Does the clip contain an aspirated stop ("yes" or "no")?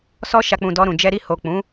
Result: no